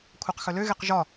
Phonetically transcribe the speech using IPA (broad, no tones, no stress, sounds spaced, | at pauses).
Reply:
kʷʰ æ q x œ l ø ɣ e q ʒ ɒ